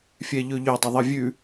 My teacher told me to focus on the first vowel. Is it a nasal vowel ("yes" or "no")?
no